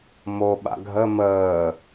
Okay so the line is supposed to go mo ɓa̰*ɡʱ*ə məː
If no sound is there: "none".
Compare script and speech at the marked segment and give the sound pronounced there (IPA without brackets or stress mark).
ɡʱ